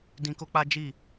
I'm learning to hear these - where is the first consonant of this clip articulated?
tongue tip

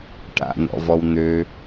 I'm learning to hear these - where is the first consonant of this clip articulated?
retroflex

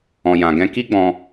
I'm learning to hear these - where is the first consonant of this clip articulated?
palate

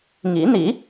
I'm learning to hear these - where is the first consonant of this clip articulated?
velum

